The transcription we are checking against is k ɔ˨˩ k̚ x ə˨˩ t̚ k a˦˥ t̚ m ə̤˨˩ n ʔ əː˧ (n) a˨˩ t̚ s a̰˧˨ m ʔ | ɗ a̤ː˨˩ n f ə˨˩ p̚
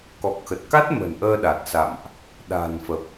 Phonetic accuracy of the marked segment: incorrect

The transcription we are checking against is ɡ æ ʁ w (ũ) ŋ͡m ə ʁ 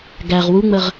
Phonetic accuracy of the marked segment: incorrect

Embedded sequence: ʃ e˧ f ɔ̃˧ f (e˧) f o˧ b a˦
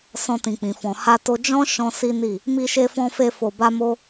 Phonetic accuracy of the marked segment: correct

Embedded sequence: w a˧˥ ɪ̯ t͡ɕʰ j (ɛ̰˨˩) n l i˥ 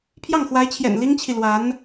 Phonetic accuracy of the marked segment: correct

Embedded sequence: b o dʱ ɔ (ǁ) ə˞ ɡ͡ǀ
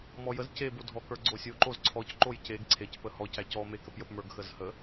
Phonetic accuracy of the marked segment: incorrect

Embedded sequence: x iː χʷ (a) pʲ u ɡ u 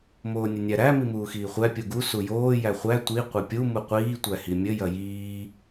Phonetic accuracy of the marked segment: incorrect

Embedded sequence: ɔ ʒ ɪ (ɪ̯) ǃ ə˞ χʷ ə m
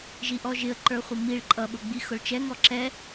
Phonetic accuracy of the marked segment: incorrect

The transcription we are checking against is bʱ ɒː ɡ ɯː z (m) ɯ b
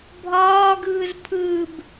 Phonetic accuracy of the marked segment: incorrect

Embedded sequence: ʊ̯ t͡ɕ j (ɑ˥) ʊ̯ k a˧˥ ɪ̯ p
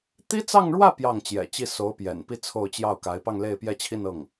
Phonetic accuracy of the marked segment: incorrect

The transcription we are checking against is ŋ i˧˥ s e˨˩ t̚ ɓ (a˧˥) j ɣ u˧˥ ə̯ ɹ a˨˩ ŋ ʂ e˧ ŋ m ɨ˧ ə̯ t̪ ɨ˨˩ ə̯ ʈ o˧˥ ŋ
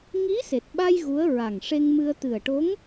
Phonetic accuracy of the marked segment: incorrect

